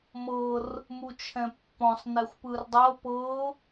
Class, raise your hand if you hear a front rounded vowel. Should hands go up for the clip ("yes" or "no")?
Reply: no